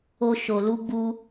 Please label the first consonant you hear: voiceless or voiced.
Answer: voiceless